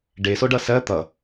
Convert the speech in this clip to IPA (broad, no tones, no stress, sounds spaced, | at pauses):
ɖ e s o ɖ ʌ s ɜ t̪ ʌ